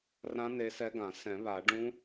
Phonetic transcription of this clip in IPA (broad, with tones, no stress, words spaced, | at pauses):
rã˧˥ ne˧˥sɛ˧˥ɡã˨˩˦ sɛ̃˨˩˦βa˨˩˦ ɖũ˧˥